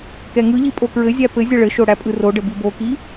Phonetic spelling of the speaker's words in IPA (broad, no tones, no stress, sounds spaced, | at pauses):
k ɛ ŋ ɯ ʎ i pʼ o k ɹ ɘ zʲ æ p ɘ zʲ ə ɭ ɘ ʃ o ɽ æ pʼ ɯ r o ɖ ɘ b i b o k i